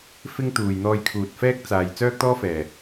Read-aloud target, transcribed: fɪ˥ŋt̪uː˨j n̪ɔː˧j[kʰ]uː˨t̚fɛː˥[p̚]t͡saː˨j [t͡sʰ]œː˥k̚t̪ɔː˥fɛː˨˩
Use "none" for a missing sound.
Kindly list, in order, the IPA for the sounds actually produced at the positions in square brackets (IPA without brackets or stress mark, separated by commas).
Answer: kʰ, k̚, t͡s